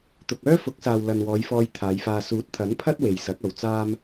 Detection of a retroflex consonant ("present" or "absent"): absent